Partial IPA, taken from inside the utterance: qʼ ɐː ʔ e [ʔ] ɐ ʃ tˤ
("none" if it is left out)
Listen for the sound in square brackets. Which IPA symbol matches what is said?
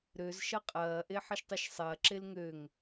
ħ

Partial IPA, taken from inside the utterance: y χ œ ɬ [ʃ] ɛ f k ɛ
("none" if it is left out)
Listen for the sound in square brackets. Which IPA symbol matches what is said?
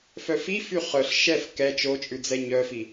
ʃ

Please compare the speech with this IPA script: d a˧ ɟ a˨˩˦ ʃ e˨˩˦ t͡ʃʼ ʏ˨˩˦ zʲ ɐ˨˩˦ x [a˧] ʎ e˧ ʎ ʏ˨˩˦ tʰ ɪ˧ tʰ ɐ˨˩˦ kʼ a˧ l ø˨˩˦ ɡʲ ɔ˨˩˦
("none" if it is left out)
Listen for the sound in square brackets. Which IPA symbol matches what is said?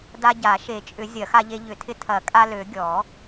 a˧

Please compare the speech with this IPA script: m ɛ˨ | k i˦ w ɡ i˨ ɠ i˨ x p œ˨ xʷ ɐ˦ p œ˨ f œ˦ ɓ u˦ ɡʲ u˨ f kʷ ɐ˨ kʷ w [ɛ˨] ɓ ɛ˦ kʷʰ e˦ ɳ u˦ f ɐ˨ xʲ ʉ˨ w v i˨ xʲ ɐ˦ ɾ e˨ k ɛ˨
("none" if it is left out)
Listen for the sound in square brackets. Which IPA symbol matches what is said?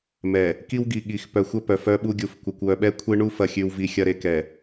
œ˨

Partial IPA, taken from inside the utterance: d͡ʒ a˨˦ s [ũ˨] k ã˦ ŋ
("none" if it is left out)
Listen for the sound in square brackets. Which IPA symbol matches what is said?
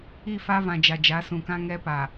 ũ˨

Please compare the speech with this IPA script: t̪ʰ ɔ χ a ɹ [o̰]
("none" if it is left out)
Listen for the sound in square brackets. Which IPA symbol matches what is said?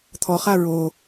o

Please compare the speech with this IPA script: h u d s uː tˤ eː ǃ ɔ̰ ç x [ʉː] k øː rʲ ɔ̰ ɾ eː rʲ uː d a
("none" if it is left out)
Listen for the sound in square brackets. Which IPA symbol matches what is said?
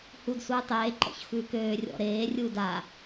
ʉː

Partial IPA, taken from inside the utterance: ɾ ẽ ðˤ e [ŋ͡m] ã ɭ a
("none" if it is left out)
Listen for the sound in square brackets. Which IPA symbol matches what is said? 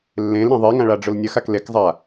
ŋ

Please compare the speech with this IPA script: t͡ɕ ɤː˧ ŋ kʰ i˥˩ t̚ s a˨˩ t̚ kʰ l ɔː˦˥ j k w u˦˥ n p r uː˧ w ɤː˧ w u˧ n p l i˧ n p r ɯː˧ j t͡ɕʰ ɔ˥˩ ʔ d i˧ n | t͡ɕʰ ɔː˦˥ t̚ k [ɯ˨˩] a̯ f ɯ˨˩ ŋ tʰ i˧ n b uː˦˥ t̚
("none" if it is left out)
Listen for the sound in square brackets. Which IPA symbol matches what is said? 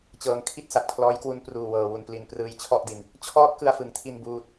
ɯ˧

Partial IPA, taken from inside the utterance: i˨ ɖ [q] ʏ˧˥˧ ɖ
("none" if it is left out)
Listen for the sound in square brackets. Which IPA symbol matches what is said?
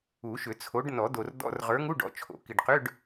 q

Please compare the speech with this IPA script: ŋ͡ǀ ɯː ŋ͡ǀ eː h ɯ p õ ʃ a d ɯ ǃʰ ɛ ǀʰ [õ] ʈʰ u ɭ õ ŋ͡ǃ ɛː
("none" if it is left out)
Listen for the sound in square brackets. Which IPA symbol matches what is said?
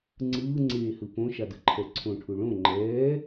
õ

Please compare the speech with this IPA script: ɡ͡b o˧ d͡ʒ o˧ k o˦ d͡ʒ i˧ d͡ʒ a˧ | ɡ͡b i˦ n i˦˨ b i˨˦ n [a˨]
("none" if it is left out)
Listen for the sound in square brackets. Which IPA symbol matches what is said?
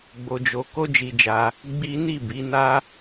a˦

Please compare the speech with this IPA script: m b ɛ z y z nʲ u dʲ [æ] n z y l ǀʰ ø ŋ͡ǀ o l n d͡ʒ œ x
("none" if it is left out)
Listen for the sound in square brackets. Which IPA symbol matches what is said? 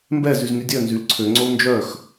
œ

